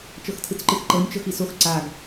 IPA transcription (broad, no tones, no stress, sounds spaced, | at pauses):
t͡ʃ ɤ x tʰ ɯ t͡s ǃ ɯ x ǃ ɤ nʲ t͡ʃ ɤ x i s o x ǀ a ɡ